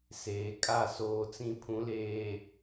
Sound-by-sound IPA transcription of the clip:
s eː˨ kʼ a˦˨ s oː˨ t͡s ĩ˨ pʰ ũ˨˦ l eː˨

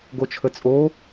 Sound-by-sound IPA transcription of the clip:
ɡ o t͡ʃʰ ə t͡sʼ o

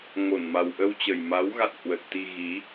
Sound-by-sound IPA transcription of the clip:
ŋ o˧˩ n m a˨˩ w ʔ ə˧ w t͡ɕ ə˨˩ j m a˨˦ w ɣ a̰˧˨ n h w ə˨˩ t̚ t̪ i˧ ɣ i˨˦

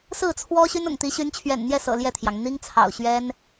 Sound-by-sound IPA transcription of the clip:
s ɹ̩˥˩ t͡sʰ w ɔ˥ ɕ y˥ n ʊ̰˨˩ ŋ t̪ i˧˥ ɕ y˧˥ n t͡ɕʰ ɥ ɛ̰˨˩ n n̪ j ɛ˥˩ s ɤ̰˨˩ l j ɛ˥˩ t̪ʰ j ɑ˩ ŋ n̪ i˥ ŋ t͡sʰ ɑ̰˨˩ ʊ̯ ɕ ɥ ɛ˥ n

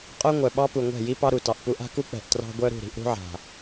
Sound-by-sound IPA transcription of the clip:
qʼ œ˦ ŋʷ œ˨ ɓ ɑ˦ p u˨ ŋʷ ɛ̤˦˨ j i˦ p ɑ˦ ɾ u˨ t ɑ˨ ʔ p u˦ ʔ a̤˦ k u˦ k͡p ɛ̤˨ ʔ t r ɑ̤˦ ɡʷ œ˦ ɾ ṳ˦˨ ɾ i̤˨˦ ʔ ɾ ṳ˦ ʕ a̤˨

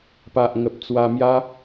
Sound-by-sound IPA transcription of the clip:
p a˨ ʔ ŋ ə˨ p̚ t͡s w a˧ m j a˦

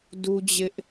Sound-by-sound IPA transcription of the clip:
d u˦ d͡ʑ ɪ˦ ʔ

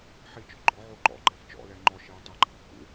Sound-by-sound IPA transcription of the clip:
ħ i t͡ʃ ɔ ɡ͡ǃ ɔ ʕ o ǃ ɔ̰ ɡ͡ǃ ɛ f t͡ʃ ɔ̰ l ɛ ŋ͡ǃ ɔ ʃ i w tˤ ʊ ɡ͡ǃ a̰ kː ṵ

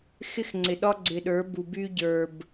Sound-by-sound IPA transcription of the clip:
x ɪ˦ x ŋ͡ǀ ɪ˨ ɗ ɒ˦ ɡ͡ǀ ɪ˨ ɗ ə˞˨˦ b u˨ b y˦ ɟ ə˞˨ b

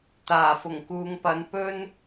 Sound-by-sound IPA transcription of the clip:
t̪ aː˨˩ f ʊ˨˩ ŋ k uː˨˧ ŋ p ɐ˨˥ n p ɵ˥ n

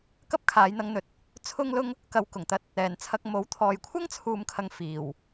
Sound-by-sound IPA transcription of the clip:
k ɐ˥ p̚ kʰ aː˨˧ j n̪ ɐ˧ ŋ n̪ ɵ˨ t̚ | t͡sʰ ʊ˥ ŋ l ʊ˥ ŋ | k ɐ˧ w k ʊ˨˩ ŋ t̪ ɐ˧ t̚ | ɛː˨˩ n t͡sʰ ɐ˧ k̚ m o˨˥ w t̪ʰ ɔː˨ j kʷʰ ɐ˥ ŋ t͡sʰ uː˨ m kʰ ɐ˨ ŋ f iː˨˩ w

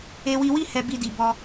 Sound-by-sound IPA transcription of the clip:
e˧ w i˧ w i˦ h ɛ˦ b i˦ d i˧ b ɔ˧

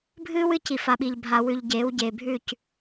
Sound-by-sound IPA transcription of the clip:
bʱ ɨː˦ w ɨ˧ c i˨ f a˨ ɓ i˨ ʎ bʱ a˨ w ʉ˨ ʎ ɟ eː˨˦ w ɟ eː˨ bʱ ʉ˦˨ c

